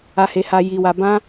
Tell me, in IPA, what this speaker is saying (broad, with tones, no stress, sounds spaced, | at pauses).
a˧ h e˧ h a˧ j i˧ w a˧ b ã˦